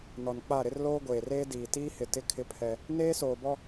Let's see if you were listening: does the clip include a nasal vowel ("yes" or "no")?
no